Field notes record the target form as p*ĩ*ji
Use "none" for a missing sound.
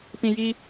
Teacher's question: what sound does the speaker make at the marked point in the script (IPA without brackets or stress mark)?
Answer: ĩ